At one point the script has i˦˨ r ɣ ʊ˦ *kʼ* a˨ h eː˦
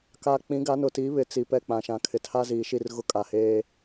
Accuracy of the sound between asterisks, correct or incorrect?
correct